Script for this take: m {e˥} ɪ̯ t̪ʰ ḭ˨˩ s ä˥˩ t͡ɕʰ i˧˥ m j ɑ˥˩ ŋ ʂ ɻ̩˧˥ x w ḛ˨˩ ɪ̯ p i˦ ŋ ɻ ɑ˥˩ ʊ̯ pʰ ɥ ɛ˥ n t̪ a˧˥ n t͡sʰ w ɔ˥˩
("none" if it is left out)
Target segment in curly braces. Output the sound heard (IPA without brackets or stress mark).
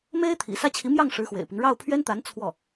e˥